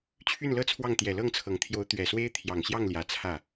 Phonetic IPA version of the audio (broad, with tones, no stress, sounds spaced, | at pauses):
t͡ɕʰ y˥˩ n l ɤ˥ t͡sʰ w ɑ˥˩ ŋ t̪ j ɛ˨˩ l ɤ˥˩ ŋ t͡sʰ ɤ˨˩ ŋ t̪ʰ j o˧˥ ʊ̯ t̪ ɥ ɛ˨˩ s w e˥ ɪ̯ t̪ʰ j ɑ˨˩ ŋ ɕ j ɑ˥˩ ŋ l j ä˨˩ t͡sʰ ä˥˩